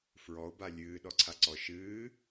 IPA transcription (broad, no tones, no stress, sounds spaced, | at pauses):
f ɹ ɔ o̯ b a lʲ ɨː ɗ ɔ ǀʰ a ǀ ɔ ʃ ɨː